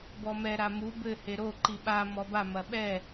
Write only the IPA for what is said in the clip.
bɔmɛ ɾamu bɘ heɾo ǃiɓa mɔba mɐɓɛ

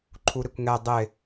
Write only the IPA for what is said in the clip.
ǃʰuɾɪkʷŋɛ dˤɪ

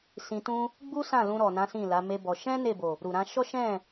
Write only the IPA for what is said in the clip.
sĩ˧tũ˦ | ɡ͡bu˦ sã˦˨lũ˧ ɾɔ˨nã˨˦ sĩ˦˨la˨˦me˦bɔ˧ ʃɛ̃˦ ne˦˨bo˨ | ɾu˨ɾã˧ ʃɔ˦ʃɛ̃˦˨

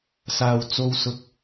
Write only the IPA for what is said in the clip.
saː˨w t͡so˧w sʊ˧k̚

